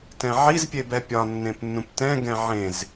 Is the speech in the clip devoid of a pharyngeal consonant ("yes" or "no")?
no